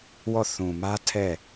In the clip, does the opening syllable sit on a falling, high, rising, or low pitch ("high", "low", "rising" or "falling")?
falling